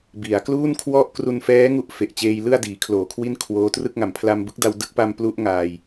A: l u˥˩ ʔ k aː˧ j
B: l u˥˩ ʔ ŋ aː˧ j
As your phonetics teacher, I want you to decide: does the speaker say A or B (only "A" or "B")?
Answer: B